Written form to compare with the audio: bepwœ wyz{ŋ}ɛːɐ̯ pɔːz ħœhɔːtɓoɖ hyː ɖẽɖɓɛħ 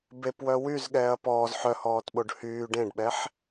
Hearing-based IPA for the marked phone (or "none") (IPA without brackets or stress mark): ɠ